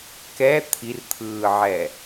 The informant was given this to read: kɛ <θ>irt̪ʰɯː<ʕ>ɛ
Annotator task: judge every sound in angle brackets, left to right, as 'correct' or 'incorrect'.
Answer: incorrect: t̪ʰ, correct

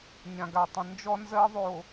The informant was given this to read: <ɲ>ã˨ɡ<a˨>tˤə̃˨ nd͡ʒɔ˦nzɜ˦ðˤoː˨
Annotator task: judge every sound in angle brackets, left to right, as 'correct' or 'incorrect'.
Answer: correct, correct

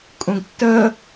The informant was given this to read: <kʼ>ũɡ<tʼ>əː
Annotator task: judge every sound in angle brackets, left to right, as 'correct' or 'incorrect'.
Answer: correct, incorrect: tː

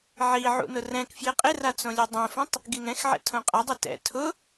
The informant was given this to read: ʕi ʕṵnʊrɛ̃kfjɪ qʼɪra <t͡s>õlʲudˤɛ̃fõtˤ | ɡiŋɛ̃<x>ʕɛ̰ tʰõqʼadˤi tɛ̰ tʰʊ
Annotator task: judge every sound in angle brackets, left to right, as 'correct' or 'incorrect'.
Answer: correct, correct

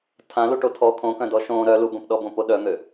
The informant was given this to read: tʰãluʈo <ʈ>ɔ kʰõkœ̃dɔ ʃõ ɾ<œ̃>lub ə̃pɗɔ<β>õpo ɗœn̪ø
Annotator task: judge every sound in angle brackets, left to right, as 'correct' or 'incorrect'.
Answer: incorrect: tʰ, incorrect: œ, incorrect: b

